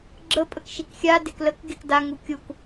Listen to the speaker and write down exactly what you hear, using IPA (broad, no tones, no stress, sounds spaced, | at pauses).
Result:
ɡ͡ǁ ə pʼ ə k ʃ i k xʲ a d e k l ə k ɡ e k d a ŋ u kʲ u k